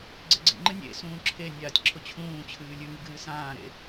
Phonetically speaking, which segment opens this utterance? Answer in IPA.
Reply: ɡ͡ǀ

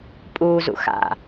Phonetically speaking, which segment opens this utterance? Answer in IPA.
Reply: pʼ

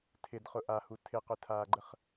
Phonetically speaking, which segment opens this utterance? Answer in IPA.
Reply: tʰ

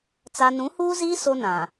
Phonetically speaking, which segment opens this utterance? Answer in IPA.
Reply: t͡s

